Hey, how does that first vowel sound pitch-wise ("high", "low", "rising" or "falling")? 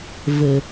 low